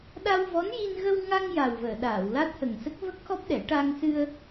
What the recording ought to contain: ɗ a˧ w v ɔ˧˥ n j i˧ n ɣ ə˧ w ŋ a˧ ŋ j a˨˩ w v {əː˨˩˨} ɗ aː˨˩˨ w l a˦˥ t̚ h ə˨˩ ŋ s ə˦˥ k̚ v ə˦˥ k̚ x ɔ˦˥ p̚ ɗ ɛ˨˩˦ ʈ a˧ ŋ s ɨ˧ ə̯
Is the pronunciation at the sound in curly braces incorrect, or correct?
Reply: correct